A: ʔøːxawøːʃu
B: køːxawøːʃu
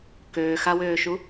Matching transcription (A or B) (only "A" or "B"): B